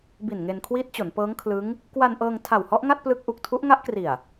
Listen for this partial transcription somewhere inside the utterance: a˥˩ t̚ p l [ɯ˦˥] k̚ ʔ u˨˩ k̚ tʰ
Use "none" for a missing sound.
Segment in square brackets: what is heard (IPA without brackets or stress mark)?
ɯ˦˥